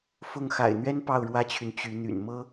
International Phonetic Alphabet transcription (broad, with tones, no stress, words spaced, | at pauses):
fʊ˥˩ŋ xa̰˨˩ɪ̯n̪ɥɛ˥n pɑ˥˩ʊ̯ɻwä˥t͡ɕʰy˨n t͡ɕy˧˥n̪y̰˨˩n mɤ˥